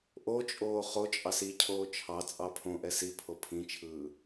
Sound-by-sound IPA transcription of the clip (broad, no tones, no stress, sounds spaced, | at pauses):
ʔ o t͡ʃʼ oː χ o t͡ʃʼ ɑ s i cʰ oː t͡ʃʰ ɑ t͡sʼ ɑ pʰ õ ʔ ɛ s i pʰ o pʰ ĩ t͡ʃʰ ɯː